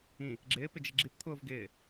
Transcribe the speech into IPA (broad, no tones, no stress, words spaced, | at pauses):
ĩ | ɡ͡ǁɪː pɪd͡ʒɪɡ͡ǁip t̪ʰʊːvɡɪː